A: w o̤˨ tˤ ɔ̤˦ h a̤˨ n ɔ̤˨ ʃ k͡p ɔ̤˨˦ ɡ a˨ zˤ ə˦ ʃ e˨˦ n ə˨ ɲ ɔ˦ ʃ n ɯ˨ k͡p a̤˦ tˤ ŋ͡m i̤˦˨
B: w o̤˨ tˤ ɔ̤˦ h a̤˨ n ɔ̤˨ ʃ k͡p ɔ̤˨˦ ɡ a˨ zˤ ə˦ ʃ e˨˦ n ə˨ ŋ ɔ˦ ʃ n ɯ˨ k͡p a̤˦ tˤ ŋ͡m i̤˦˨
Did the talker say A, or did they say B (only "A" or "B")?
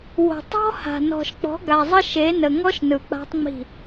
B